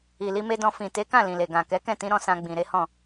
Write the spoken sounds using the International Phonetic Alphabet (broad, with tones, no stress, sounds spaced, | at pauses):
i˨ l i˧ m e˧ d ɔ̃˧ f ĩ˨ t e˨˦ k ã˦˨ l ĩ˨ l e˨ ɡ ã˨ k ɛ˨˦ k ɛ̃˦˨ t ĩ˨˦ ɾ ɔ̃˧ s ã˧ ɡ͡b ĩ˨ ɾ e˨˦ h ɔ̃˦˨